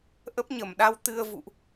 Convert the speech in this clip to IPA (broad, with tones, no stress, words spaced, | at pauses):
ʔə˦˥p̚ɲə˧˩mɗa˧w t̪ɨ˧ə̯vṵ˧˨ʔ